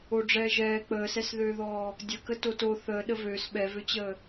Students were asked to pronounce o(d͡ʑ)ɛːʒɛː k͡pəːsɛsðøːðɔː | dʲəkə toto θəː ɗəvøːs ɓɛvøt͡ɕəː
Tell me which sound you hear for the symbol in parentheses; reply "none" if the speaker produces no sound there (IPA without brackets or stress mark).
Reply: ɖ͡ʐ